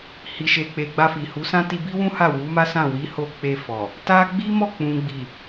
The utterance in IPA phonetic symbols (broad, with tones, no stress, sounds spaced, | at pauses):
h i˨ ʃ e˨ k͡p e˨ ɡ͡b a˧ f i˨ h u˨˦ s ã˦ t i˧ b i˦ w ũ˦ h a˦˨ w u˨˦ m a˦ s ã˦˨ w i˨˦ h o˧ k͡p e˧ f ɔ˨ | t a˦ ɡ͡b i˦ m ɔ˦˨ k͡p ũ˨ ɡ͡b i˨